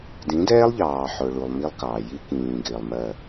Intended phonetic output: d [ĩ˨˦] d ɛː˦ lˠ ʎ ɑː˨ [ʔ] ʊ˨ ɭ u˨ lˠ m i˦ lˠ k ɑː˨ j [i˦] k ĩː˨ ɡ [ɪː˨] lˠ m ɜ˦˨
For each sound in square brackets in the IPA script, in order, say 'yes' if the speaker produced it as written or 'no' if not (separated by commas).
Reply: yes, no, yes, yes